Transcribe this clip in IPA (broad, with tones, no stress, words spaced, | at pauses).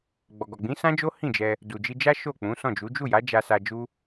ɡ͡bɔ˨ɡɔ˨ ɡ͡bĩ˨˦sã˦d͡ʒo˦ hĩ˦˨d͡ʒɛ˧ | du˨d͡ʒi˧d͡ʒa˦ ʃo˦˨k͡pũ˨˦sɔ̃˦˨d͡ʒu˨˦ d͡ʒu˦˨ja˨˦ d͡ʒa˧sa˧d͡ʒu˦